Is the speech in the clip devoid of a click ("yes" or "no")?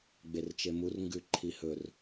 no